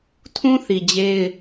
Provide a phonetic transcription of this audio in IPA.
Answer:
tʰũ˦θi˨ d͡ʑe˦ɪ̯

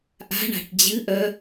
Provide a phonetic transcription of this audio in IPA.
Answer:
ʔa̤ɳa̤ʈ d͡ʑɨʔœ

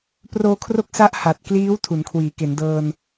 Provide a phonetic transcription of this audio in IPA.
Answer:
proː˧kʰro˦˥k̚sa˦˥ʔ ha˨˩t̚kliː˦˥w tʰu˩˦nkʰwiː˩˦ ke˩˦ndɤː˧n

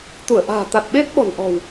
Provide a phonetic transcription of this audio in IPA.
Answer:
t̪u˧˩ə̯ʔa̤ː˨˩ t̪a˨˩t̚ɓe˦˥t̚ ɓɔ̤˨˩nʔɔ̤˨˩w

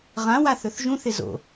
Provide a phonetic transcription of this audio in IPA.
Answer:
ʁãwa θɵθʒũθɪ zo̰

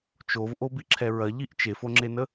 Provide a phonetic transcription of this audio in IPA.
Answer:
t͡ʃovʔobiǁʰɛ ɹɐʎiʔ t͡ʃefoŋ͡ǁenə

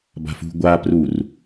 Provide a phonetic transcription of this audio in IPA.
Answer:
ba̤fṳ ɡʷa prur

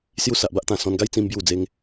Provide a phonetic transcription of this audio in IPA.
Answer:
sju˧sa˨ʔba˦ʔt̪ã˨˩ sɔ̃˧nɡa˦j t͡sĩ˦mbju˥˧d͡ze˦ŋ

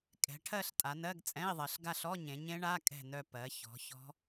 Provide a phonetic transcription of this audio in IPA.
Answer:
kʼɛ̤˩˧ʈʰɜ˦˨ɬ tʼa˩˧nɜ˧˥˧ɡt͡sʼɛ̃˧˥˧i̯ðˤɜ˩˧ɬ ɡa˦˨ɬɔ˧˥˧ɲẽ˩˧ɲẽ˦˥ ɳa˧˥˧ kʼɛ̤˦˨nœ˦˨ pɜ˩˧çɔ̤˩˧ çɔ̤˦˥

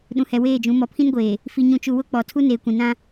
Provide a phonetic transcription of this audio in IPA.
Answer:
ɗũ˨hɛ˨ weː˦˨d͡ʒũ˨˦ mɔ˨pʰĩ˦nɡʷeː˨ | fi˨ɲũ˨t͡ʃu˨ wʊ˦k͡pɔ˨ tʰu˦neː˨kʷĩ˨ nã˦

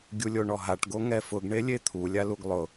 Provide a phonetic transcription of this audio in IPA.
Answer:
ɡʲulʲoɳɔɦaʈ ɡoŋɛfʊɡ ɳelʲet̪ʰu lʲaluɡlˠʊ

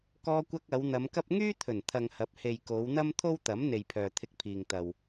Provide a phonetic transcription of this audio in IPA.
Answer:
kɔː˧kʷɐ˧k̚ ɐ˨˧wn̪ɐ˨˧mkɐ˥p̚ ŋyː˥t̪ʰɵ˨˩nt̪ʰɐ˨ŋ hɐ˨˥p̚he˨j ko˨˧wn̪ɐ˥mt̪ʰo˥wt̪ɐ˨˥m n̪e˨jpʰœː˨t̪ʰɪ˧k̚pʰiː˨ŋ t̪ɐ˨w

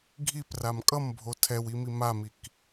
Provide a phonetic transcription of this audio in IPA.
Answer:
ɡʱipram kʼʌmbʱo tʰɛwimi mamik

